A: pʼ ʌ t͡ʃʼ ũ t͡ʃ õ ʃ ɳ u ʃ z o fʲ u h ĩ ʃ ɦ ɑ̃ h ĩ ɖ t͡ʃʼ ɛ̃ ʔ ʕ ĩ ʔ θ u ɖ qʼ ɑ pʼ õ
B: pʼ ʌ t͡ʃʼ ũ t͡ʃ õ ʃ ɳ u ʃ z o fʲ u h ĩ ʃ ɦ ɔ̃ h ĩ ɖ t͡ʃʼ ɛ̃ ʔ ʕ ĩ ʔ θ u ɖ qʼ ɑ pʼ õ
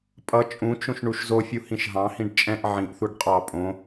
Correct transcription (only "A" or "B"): A